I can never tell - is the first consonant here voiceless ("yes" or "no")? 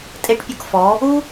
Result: yes